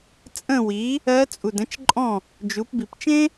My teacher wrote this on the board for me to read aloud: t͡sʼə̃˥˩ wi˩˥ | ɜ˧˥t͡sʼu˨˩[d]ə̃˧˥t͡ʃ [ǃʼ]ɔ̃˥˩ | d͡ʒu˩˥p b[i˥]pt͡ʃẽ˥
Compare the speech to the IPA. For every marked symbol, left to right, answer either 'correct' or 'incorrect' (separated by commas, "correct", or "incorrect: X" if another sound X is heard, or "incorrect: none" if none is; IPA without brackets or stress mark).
correct, correct, incorrect: i˨˩